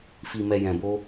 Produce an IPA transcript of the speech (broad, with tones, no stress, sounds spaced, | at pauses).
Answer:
f i˨ m ɛ˨ j ɛ̃˨ b o˧